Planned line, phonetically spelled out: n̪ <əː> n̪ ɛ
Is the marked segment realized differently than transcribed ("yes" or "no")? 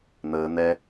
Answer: no